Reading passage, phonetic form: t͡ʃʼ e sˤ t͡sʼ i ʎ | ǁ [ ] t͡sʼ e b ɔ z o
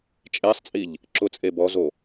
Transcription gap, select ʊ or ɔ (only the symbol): ʊ